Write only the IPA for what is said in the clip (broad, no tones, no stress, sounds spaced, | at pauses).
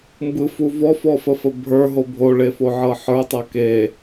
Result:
m b ɯ f u v ɔ f ɔ f ə f ə bʱ ə˞ ɦ o bʱ o ɭ e f o ʕ ɤ ħ ə˞ tˤ ɤ k e